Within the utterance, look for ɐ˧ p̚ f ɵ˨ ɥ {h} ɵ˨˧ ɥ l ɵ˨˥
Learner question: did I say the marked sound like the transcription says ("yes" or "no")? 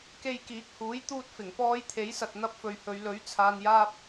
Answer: yes